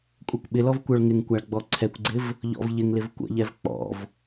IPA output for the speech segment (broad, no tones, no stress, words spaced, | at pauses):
kʷʼɛkʷɓɪlɔv kʷœɭŋɪŋkʷaɭ ɡ͡bɔǀʰɛkʷɡ͡ǀɪv | ʎɔ̰vʎɪŋlɪv kʷə̰ʎɛv k͡pɔ̰v